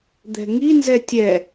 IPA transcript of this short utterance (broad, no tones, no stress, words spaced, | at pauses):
d̪ɛ̤ŋi nzɛtʲɛ